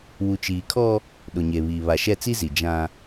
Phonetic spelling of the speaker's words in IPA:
w u˨ t͡ʃ iː˨ kʰ ɔ˦ | ɗ ʊ˨ ɲ e˨ β iː˨ β a˨ ʃ ɛ˦˨ t͡s i˦ z i˨ d͡ʒ ã˦

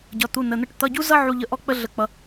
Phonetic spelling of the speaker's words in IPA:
ɟ ʌ˧˥˧ t̪ u˧˥˧ n ə˧˥˧ n̪ ə˥ ʈ t̪ ʌ˧˥˧ ɟ u˥ z ʌ˥ ʕ u˥ ʎ ə˥ ʔ ɔ˥ k͡p ə˥ ɮ ə˥ k͡p ʌ˥

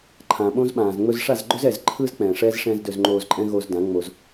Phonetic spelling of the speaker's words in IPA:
ǃʰ ã˨ ɓ õ˦ z ɓ ãː˨ z ŋ͡m ɵ˧ z ʂ a˦˨ z ɡ͡ǃ ɵ˦ z ɛ˨ z ǃʰ ɯː˦ z k͡p ɛ̃ː˨ ʂ ɛː˦ z ʂ ɛ̃ː˦ z d ɵ˧ z ŋ͡ǃ oː˧ z ǃʼ ɛ̃˦ ɣ o˧ z d ã˨˦ ŋ͡m o˧ z

